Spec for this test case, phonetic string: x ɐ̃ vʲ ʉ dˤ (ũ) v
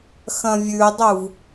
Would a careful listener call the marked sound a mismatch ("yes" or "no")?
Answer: yes